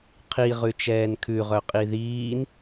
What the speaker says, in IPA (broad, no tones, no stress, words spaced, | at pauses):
qʰi ʁʉt͡ʃɛːnkʰʉ ʁœqʼiðiːn